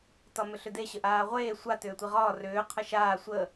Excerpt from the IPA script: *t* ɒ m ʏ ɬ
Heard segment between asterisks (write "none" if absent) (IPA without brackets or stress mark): t